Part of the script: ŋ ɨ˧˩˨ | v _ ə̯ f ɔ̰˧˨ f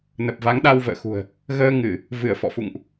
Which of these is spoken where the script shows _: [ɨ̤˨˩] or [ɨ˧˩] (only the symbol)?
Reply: ɨ˧˩